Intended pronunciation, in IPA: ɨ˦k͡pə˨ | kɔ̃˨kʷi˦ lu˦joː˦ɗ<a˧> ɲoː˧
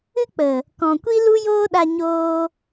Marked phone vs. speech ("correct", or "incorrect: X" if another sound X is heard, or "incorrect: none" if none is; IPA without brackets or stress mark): correct